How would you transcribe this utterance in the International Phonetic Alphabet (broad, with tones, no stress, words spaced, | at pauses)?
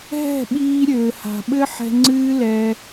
ɦɛ̤˦˨ɓiː˧ ɾʲɘː˨ha̤˨ɓɘ˦ ħɛ̤˧ ŋ͡ǀɨː˦lɛ˧